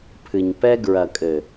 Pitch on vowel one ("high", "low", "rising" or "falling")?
low